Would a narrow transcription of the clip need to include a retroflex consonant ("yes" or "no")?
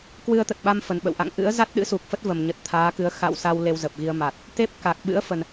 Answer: no